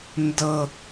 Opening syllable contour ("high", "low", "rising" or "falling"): high